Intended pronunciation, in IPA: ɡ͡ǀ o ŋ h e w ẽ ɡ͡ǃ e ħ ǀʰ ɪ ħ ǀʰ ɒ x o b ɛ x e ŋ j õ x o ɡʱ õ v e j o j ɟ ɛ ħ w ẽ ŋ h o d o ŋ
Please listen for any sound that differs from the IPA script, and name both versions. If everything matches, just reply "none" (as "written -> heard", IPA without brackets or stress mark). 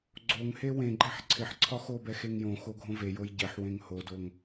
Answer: none